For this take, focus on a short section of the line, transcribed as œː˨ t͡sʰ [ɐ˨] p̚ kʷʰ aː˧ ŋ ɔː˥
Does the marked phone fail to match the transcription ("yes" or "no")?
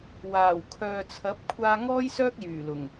yes